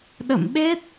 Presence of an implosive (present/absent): present